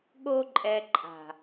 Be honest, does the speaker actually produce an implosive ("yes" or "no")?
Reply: yes